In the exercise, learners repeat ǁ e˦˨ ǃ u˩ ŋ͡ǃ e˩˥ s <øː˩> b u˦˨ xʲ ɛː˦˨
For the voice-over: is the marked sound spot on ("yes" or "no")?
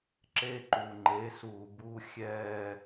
no